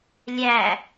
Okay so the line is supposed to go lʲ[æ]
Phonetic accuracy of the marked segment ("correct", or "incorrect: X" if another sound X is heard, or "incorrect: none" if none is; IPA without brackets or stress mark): correct